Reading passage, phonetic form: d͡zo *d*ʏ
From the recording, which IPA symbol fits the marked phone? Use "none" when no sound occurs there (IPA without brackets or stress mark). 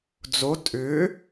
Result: tʼ